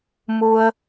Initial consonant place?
labial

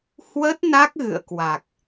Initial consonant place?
glottal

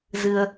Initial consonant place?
alveolar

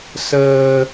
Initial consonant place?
alveolar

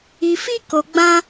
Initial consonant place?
labial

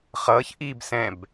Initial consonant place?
uvular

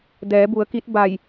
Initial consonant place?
alveolar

